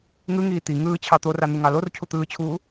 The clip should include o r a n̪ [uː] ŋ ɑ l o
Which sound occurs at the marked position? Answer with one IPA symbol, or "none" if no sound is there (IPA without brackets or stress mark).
u